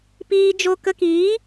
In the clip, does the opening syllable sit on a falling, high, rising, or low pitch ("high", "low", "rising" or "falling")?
high